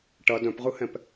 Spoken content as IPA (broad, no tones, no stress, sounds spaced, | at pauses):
ʈ ɐ d œ̃ p ʁ ɯ h ɛ̃ p